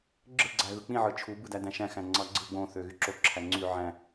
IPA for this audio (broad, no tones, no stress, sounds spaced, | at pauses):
ɡ͡ǁ ɯ ɡ͡ǀ æ ɣ ɯ k͡p ĩ ʕ ɯ t͡ʃʰ u b ɯ d æ d æ̃ ʃ æ̃ x æ̃ ŋ͡ǀ ɑ ɡ͡ǀ ɯ ɡ͡b õ θ ø ɣ y ǁ o ǁʰ æ ŋ͡ǀ y ʕ æ̃